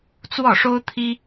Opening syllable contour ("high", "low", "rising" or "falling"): falling